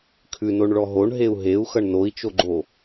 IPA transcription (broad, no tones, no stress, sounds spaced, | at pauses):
kʰ ʉ n o ɳ ɭ ɔ ɦ o ɳ ɦ e u̯ ɦ e u̯ x ʌ ɳ n o i̯ t͡ʃ o ɡ͡ǃ o